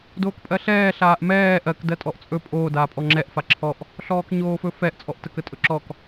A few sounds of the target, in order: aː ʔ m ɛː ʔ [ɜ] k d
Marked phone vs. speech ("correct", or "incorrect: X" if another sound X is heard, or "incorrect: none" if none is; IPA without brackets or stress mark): correct